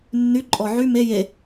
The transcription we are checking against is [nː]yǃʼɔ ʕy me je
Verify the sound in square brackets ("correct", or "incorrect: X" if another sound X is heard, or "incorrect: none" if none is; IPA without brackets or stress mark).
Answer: correct